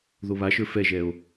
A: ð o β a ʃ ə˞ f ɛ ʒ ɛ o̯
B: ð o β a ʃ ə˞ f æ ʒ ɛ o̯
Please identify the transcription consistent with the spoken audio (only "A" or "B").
A